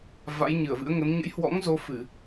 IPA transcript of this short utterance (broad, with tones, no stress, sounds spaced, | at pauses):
v a̰˧˥ j ɲ ɨ˧˩ ə̯ v ɨ̰˧˥ ə̯ ŋ ə˨˦ n ɲ ə̰˧˥ j h w ɔ̰˧˥ ŋ z o˧ f ɨ˧˩˨